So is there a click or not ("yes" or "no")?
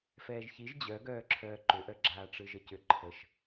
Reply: yes